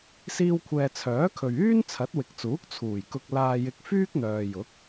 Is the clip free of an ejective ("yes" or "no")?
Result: yes